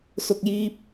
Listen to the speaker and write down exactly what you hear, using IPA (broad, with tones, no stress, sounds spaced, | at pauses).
s ʊ˨ k̚ j iː˧ p̚